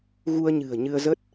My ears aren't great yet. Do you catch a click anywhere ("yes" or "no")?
no